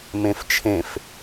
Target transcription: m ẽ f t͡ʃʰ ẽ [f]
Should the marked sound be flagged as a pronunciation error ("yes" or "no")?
no